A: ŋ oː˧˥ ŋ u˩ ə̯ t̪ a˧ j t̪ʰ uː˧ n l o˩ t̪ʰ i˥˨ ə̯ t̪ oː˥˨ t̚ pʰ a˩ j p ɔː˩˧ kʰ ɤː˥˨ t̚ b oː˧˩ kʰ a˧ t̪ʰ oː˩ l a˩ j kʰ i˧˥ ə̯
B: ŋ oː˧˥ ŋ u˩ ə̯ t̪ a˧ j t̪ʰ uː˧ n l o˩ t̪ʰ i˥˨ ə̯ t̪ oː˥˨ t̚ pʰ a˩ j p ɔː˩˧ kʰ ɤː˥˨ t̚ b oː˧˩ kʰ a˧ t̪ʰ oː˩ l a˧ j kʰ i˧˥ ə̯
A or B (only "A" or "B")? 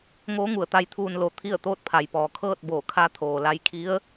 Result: B